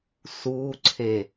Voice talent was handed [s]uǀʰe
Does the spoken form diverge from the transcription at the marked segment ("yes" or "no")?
no